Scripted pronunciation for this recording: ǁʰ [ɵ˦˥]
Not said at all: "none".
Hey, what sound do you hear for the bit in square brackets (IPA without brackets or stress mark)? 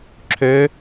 ø˦˥